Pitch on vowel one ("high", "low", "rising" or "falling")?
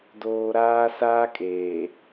high